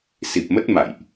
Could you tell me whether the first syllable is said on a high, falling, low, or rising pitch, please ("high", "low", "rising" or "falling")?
low